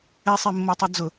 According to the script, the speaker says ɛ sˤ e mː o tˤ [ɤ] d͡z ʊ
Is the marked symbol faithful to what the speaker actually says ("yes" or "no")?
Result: yes